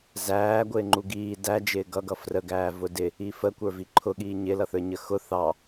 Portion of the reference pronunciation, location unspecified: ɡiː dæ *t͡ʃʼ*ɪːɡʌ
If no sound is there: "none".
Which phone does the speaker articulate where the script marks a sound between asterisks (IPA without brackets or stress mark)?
d͡ʒ